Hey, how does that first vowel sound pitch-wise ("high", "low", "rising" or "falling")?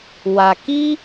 low